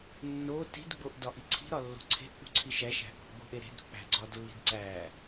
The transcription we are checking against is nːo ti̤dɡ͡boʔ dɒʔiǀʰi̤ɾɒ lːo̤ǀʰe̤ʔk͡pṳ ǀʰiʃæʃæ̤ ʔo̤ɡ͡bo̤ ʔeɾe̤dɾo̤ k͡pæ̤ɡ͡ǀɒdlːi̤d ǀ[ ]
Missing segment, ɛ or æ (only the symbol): æ